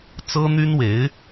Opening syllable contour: high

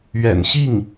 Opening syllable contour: low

